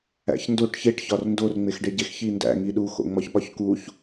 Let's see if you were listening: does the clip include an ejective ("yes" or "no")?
no